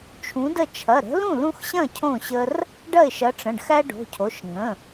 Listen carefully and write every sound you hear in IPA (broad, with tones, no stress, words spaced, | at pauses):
t͡ʃʰũ˨˥də˥˩ t͡ʃʰɐ˩˧˩ɾə̤˨˥lũ˥˩ lũ˦xɕɐ̃˥˩ cʰõ˥˩ɕə˦r | ɖɐ˥˩ɪ̯ʃɐ˨˥ʈ͡ʂə̃˩˧˩ɖ xæ˦ɖo̤˩˧˩cʰo˩˧˩ʃ ŋə̃˩˧˩